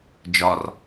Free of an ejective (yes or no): yes